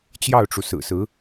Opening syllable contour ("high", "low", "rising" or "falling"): falling